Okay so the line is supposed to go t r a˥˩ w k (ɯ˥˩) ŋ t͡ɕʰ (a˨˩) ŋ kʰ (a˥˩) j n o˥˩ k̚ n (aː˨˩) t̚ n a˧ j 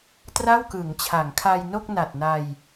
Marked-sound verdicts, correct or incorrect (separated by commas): incorrect, incorrect, incorrect, incorrect